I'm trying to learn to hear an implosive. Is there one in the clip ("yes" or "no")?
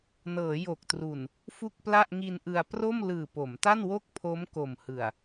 no